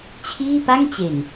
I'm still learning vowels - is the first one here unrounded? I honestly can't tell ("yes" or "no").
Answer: yes